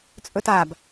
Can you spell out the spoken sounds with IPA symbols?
t͡sʼ ɵ t a b

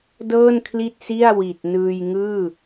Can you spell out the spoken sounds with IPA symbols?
d ɤː˥˩ n kʰ l i˥˩ t̚ s i˥˩ a̯ w i˨˩ t̚ n ɯː˧ j ŋ ɯː˥˩

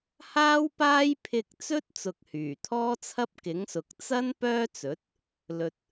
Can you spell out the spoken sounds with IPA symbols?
h aː˥ w p aː˥ j pʰ ɪ˧ k̚ t͡s ɵ˥ t̚ t͡s ʊ˨ k̚ h yː˨˩ t̪ʰ ɔː˥ t͡sʰ ɐ˥ p̚ k ɪ˨˥ ŋ s ʊ˨ k̚ t͡s ɐ˥ n p œː˥ t͡s ɵ˨˥ t̚ | l ɵ˧ t̚

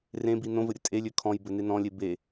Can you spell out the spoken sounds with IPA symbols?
r ẽ b i n õ v ɘ ɾʲ ɘ tʼ e lʲ ø kʰ ɔ̃ j b ɘ n e n ɔ̃ lʲ e b e

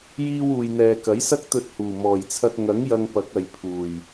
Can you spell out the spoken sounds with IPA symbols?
j iː˧ w uː˨ j n̪ ɛː˨ k ɐ˨˥ j s ɐ˥ k̚ t̪ ɵ˧ t̚ h uː˨˩ m ɔː˨˩ j t͡sʰ ɐ˧ t̚ ŋ ɐ˨˥ ŋ j ɐ˧ ŋ p ɐ˨˥ k̚ ɐ˨ j pʰ uː˨˩ j

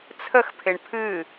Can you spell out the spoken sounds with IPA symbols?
t͡sʰ ə x pʰ ɪ ɳ pʰ ɨ

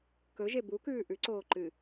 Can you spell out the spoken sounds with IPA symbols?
k ɵ ʒ e b u k ʉː ʔ ʉ ǀ oː ǃ ɨ

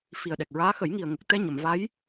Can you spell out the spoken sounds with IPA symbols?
f i˨˩ ə̯ ɗ ɛ˨˩ k̚ ɹ aː˧˥ x ə˨˩˦ j ŋ i˨˩ ə̯ ŋ ə˨˩ k̚ t̪ ɛ˧ ɲ ə˨˩˨ m v a˧˥ j

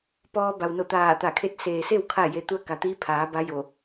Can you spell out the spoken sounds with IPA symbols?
p ɔː˧ b a˩ w n o˧˩ t̪ aː˧˩ t̪ a˧˩ kʰ e˥˨ t̚ s eː˩ s e˥˨ w kʰ a˥˨ j e˧˥ t̪ u˧ ə̯ k a˩ t̪ iː˧˥ pʰ aː˩˧ b a˧˥ j o˧˩

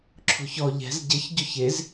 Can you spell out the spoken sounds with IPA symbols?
ǁʰ o̤ ç ɔ ʎ ɛ̤ z ɟ ɘ ç ɟ o ç e z

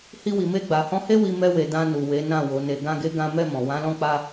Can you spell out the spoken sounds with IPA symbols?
h i˧ w i˨ m e˧ ɡ͡b a˨ h ɔ̃˧ h e˦ w i˧ m ɛ˧ w e˨ d ã˧ n u˨ w e˨˦ n ã˦˨ w o˨˦ n e˧ ɡ ã˦ ɡ e˦ ɡ ã˦ m ɛ˦˨ m ɔ̃˨ w ã˨˦ l ɔ̃˦˨ k͡p a˧

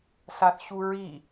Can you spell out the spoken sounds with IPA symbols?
ɬ a θ ɕ u ɹ i

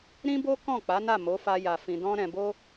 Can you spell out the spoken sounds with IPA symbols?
ɾ ĩ˦ b o˦ k ɔ̃˦˨ k͡p a˨˦ n a˦˨ m o˨˦ f a˧ j a˨ f ĩ˨ d ɔ̃˧ ɾ ɛ̃˨ b o˧

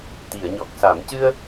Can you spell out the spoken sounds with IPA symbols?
t̪ i˨˩˨ ə̯ ɲ ɔ˨˩ k̚ s a˨˩˦ m c ɨ˧ ə̯

